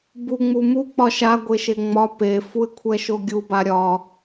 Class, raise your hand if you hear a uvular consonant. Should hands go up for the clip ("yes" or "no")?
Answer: no